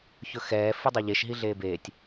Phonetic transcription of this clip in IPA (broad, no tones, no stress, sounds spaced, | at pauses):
ç ɵ x ɛː f ɨ dˤ o ʎ e ʃ ɦ i ɮ eː b eː tʲ